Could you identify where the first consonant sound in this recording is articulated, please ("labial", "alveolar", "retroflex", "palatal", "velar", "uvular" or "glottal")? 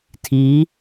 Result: alveolar